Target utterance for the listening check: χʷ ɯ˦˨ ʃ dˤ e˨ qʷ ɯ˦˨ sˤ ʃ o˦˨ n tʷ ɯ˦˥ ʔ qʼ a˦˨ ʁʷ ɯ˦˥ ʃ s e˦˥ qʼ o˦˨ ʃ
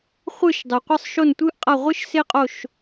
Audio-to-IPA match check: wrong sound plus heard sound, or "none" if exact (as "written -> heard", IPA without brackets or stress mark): none